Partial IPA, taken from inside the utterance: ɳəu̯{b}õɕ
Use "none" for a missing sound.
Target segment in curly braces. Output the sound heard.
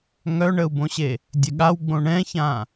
b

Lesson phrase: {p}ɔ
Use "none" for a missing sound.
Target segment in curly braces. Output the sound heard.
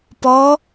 p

